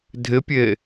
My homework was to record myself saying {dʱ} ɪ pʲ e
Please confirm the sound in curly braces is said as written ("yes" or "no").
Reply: yes